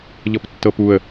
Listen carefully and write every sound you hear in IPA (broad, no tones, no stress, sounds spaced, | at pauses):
ʎ ɤ p tː ɤ p u ə̯